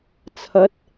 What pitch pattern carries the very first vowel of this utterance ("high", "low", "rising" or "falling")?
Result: rising